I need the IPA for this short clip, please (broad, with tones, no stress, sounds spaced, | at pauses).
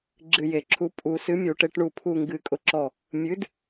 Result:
ɡ͡ǁ ɨ˧˩ j e˨˩˦ ǁʰ u˨˥ pʼ u˨˩˦ s ɨ˨˥ mʲ u˨˩˦ ʈ e˨˥ ʈ ɳ u˧˩ pʰ u˧˩ ŋ ɡ ɨ˨˩˦ kʼ ʊ˧˩ ǁ ɔ˧˩ | mʲ ɨ˨˥ d